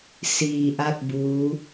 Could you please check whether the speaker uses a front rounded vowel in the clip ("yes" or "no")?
no